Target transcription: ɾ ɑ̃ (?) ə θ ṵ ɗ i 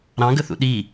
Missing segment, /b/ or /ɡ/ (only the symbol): ɡ